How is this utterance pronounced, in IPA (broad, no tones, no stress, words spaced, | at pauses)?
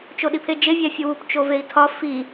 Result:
t͡ʃoɗipʰed͡ʒe vʲæfʲuwup t͡ʃovei̯tʰɒ fi